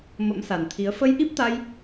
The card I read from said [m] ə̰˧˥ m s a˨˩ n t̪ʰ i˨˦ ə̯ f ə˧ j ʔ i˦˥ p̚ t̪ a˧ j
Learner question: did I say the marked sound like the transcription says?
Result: yes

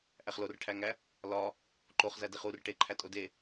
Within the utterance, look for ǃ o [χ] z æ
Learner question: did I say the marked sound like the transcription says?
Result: yes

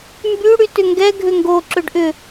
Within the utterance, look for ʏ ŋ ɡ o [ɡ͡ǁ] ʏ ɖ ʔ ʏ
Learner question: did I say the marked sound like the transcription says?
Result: no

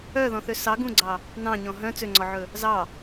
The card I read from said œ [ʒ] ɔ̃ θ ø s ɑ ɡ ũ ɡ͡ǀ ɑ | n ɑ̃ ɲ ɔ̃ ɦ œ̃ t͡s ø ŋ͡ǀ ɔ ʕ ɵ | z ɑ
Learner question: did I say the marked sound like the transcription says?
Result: no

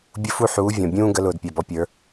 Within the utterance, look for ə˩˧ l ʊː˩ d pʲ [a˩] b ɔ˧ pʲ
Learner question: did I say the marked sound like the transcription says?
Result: no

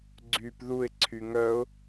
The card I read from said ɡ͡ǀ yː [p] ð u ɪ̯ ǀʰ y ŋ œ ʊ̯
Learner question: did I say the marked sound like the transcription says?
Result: yes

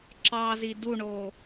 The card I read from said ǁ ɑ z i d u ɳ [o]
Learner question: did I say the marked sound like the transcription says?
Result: yes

